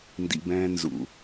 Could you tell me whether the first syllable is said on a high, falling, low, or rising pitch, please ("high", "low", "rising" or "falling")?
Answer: low